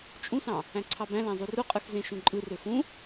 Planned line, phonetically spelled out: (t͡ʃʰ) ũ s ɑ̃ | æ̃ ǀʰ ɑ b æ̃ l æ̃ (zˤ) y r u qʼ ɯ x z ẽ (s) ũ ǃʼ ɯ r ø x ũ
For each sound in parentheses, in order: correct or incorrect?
incorrect: t͡ʃʼ, correct, incorrect: ʃ

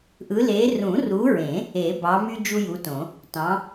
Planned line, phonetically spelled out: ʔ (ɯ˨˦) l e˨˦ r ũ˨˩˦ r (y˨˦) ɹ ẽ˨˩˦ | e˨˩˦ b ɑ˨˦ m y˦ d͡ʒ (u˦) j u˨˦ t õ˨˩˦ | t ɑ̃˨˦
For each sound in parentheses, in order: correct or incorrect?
correct, incorrect: u˨˦, correct

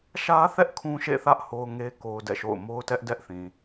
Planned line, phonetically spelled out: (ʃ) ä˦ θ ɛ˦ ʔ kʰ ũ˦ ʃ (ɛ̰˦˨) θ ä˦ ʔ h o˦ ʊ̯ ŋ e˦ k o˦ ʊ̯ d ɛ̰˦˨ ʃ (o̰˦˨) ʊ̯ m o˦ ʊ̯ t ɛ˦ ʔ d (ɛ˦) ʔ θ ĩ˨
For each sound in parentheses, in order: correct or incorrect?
correct, incorrect: ḛ˦˨, correct, correct

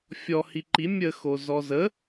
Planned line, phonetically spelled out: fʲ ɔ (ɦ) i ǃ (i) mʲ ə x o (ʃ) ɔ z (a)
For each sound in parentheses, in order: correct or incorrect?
incorrect: h, correct, incorrect: z, incorrect: ə

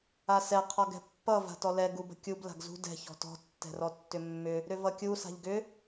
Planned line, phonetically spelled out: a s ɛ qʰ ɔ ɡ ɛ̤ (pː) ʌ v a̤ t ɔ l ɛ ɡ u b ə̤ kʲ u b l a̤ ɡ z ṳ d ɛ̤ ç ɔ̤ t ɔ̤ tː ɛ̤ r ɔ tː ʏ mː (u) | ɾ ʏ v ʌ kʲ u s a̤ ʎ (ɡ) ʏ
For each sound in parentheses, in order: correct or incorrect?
correct, incorrect: ʏ, correct

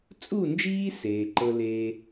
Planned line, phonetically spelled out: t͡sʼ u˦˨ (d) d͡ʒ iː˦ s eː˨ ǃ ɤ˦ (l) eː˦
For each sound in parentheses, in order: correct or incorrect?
incorrect: n, correct

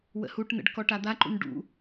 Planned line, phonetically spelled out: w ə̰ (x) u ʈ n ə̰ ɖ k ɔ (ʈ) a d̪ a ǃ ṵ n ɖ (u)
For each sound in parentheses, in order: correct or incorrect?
incorrect: h, correct, incorrect: ṵ

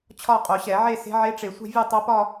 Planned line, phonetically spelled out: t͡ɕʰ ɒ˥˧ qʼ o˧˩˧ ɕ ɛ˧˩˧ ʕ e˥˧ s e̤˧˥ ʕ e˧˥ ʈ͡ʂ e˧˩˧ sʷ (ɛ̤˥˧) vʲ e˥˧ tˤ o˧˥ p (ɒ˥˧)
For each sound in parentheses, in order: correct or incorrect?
correct, correct

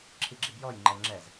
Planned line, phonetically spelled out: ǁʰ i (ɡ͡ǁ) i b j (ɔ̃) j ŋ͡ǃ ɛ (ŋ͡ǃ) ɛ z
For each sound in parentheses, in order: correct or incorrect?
correct, incorrect: ɔ, incorrect: ŋ͡ǁ

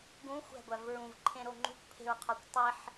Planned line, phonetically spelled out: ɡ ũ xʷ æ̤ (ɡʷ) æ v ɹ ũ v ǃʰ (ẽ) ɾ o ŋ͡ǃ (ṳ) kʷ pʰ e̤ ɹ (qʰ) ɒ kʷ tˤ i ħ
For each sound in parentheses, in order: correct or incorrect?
correct, correct, correct, correct

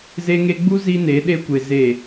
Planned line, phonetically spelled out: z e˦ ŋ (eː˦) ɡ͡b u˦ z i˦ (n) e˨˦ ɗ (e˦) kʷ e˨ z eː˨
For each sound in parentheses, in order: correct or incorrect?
incorrect: e˦, correct, correct

